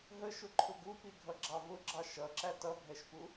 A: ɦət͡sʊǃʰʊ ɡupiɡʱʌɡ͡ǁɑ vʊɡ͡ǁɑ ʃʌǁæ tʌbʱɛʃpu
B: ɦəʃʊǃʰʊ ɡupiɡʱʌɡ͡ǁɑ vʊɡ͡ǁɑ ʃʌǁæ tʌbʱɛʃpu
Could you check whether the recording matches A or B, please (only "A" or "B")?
B